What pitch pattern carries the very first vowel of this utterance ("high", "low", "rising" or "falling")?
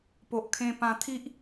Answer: low